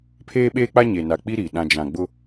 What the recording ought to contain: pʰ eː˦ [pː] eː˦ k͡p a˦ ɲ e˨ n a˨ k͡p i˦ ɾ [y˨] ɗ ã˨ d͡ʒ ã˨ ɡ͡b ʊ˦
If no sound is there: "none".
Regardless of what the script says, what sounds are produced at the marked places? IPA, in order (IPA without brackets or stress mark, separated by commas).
ɓ, i˨